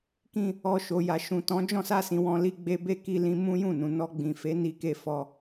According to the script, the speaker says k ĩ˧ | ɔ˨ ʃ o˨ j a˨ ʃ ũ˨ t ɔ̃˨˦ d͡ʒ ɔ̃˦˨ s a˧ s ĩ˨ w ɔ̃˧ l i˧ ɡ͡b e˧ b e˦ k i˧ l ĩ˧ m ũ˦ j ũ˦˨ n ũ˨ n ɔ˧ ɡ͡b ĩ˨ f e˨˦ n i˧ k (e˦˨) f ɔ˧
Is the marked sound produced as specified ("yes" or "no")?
no